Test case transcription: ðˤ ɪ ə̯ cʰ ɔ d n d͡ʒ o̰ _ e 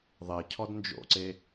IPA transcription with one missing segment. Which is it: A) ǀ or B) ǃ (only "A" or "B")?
A